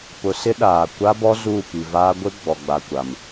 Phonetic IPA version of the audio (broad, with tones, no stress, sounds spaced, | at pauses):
p ʊ˨ s ɪ˦ ɗ aː˨ kʷ a˦ b ɔ˦ z uː˦˨ p i˨ v aː˦ ɡʷ ɪ˦ ɡ͡b ɔ˨ ɡ͡b a˨ kʷ a˨ m